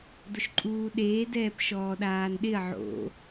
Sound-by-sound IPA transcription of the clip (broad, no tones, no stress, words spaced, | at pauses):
dʊʃǃʼuːɗeː dɛːpʃɔːɗaːnɗɪɐ̯ ʕo̰